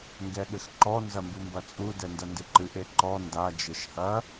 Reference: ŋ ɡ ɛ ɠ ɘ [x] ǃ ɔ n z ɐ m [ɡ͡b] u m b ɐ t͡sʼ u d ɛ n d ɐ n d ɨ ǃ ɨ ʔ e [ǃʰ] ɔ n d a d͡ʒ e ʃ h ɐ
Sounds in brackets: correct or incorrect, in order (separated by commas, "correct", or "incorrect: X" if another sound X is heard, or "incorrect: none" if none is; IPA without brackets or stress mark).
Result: correct, incorrect: b, incorrect: ǃ